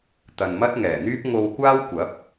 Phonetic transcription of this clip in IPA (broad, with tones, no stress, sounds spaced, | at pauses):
t̪ ɐ˨ n m ɐ˥ t̚ ŋ ɛː˨˩ n̪ yː˥ p̚ ŋ o˧ w kʷ aː˥ w kʷ ɐ˨˥ p̚